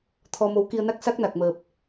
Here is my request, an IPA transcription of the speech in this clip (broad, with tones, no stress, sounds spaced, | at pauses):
t̪ʰ ɔ˧ m o˨˦ w k i˧ ə̯ n a˦˥ k̚ s a˦˥ k̚ n a˨˩ k̚ m əː˨˩ p̚